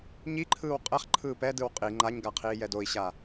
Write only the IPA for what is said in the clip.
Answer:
ɲ i ǃʰ ɯː w qʼ ɛ χ ǃʰ ɯː p ɛ d ɯ w qʼ i ŋ͡ǃ a ɲ ɡ a qʰ iː j ɛ d o i̯ ɕ a

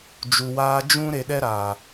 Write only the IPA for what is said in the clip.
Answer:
d͡ʒ u˨ w aː˧ d͡ʒ ũ˦ ɾ e˨ ɗ ɛ˧ ɾ a˨

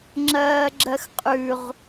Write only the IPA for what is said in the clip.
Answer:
ŋ͡ǁ ɜː ɡ͡ǁ ɜ x qʼ ʉ ʁ

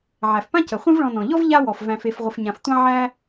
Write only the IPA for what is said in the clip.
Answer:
ʕ æ˩ f p ã˥ c ə˩ χʷ ĩ˦ v ɭ ɔ̃˨ n ɔ̃˩ ʎ ɔ˥ v ʎ a˥ w ɔ˩ f v æ̃˨ f e˨ f ʁʷ ə˨ f ɲ ã˨ f tʷ ã˥ ʕ æ˥

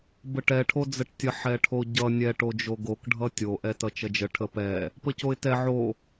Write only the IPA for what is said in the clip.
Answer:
b ə ʈ ɛ ʈʰ o d͡z ə ʈ tʲ ə ħ ɛ ʈʰ o ɟ ʌ nʲ ɛ ʈ o d͡ʒ o ɡ o k ɖʱ ʌ tʲ o ʔ ɛ t ʌ t͡ʃ ʌ d͡ʒ ə ʈʰ ə p ɛ | p ə c o ɪ̯ t ɛ ʕ o

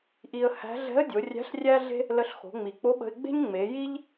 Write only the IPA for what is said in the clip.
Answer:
ʔ i˧ ə̯ h æ̤˧˥ ɮ ɛ̤˧˥ ə̯ dʲ o˩˧ rʲ æ̤˧˥ ɬ rʲ æ˥ ɮ e̤˥ | l ə˧ ɬ x o̤˩˧ ŋ͡m i˩ k͡p o˧˥ ɓ ə̤˧ ɪ̯ ɡ͡b e̤˥ ɲ ŋ͡m e˩˧ j i˥ ʎ

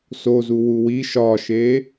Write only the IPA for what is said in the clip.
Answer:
s o z u w u w i ʃ ɒː ʃ eː

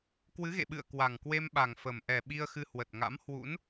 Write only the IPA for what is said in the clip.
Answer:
k w ɨ˨˦ ɣ ḛ˧˨ ɓ ɨ̰˧˨ ə̯ k w a˨˩ ŋ k w e˧ m ɓ a˨˩ ŋ f ə˨˩ m ʔ ɛ˨˩ ɓ i˧ ə̯ x ɨ˧ h w ə˨˩ t̚ ŋ a̰˧˥ m h w ṵ˧˥ n

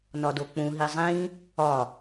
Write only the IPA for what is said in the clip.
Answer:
n ɒ d o k͡p ũ ɦ i zˤ ĩ | ɒ

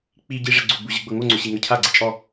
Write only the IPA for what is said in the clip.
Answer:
k͡p i ɟ i ʐ ɛ ɡ͡ǀ u ɡ͡b u ʑ ɯ ɡ͡b ɤ ŋ o ŋ͡ǀ o ɕ i ŋ ɤ cʰ a ɡ͡ǀ e t͡ʃʼ ɔ

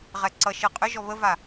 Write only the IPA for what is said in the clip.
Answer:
ʁ ɛ ǀ ʌ ʃ ɨ qʼ ʏ ʒ ɔ β ə v a

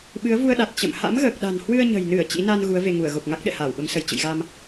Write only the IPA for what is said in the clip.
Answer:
ɓ ɨ˨˦ ə̯ v u˧ ə̯ ɗ a˨˩ t̚ t͡ɕ ə̰˧˨ m h a̰˧˥ m ɣ əː˨˩ k̚ ɗ a̤˨˩ n h w ɨ˧ ə̯ ɲ ə̤˨˩ j n ɨ˧˩ ə̯ t͡ɕ ḭ˧˥ n a˧ n ɣ u˨˦ ə̯ v e˧ ŋ u˧˩ ə̯ ɣ o˨˩ p̚ ŋ a˦˥ k̚ ɗ ɛ̰˧˨ h aː˧˩ w ɓ ə˨˦ m s ə˧˩ j t͡ɕ ɨ̰˧˨ j ɣ a˧ m

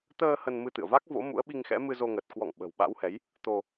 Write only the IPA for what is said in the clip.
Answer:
t̪ əː˧ h ə˧ n m ɨ˧ t̪ ɨ̰˧˨ ə̯ v a˦˥ k̚ v o̰˧˥ m ṵ˧˥ ə̯ ɓ i˧ ŋ x ɛ̰˧˥ m ɨ˧ z o˧ ŋ ə˨˩ t̚ k w ɔ̰˧˨ ŋ ɓ ə̤˨˩ w ɓ a̰˧˥ w h ɛ˨˦ j | t̪ o˧

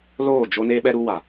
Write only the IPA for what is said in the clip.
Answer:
l oː˦˨ d͡ʒ o˦ n eː˦ ɓ ɛ˦ ɾ u˦ w a˨

